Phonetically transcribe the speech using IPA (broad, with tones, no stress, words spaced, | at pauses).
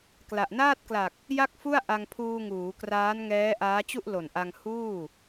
kla˨˩ʔ naː˥˩t̚kla˨˩k̚ | ja˥˩k̚fu˥˩a̯ʔa˧ŋ pʰuː˧ŋuː˩˦kraː˦˥nŋɛː˦˥ ʔaː˦˥t͡ɕu˥˩ʔlo˨˩n ʔa˧ŋ huː˥˩